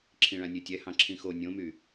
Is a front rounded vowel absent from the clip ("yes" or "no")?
no